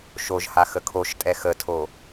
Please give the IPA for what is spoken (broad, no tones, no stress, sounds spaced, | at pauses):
ʃ o ʒ h a x ə kʰ o ʃ tʼ ɛ x ə tʰ o